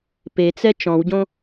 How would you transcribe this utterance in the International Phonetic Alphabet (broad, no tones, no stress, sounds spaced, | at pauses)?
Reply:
p e t͡s ɛ t͡ʃ ɔ̃ w ɟ õ